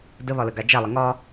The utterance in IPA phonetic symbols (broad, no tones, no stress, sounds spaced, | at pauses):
d ə β ɒ l ə ɡ a d͡ʒ a lˠ ə ŋ ɒ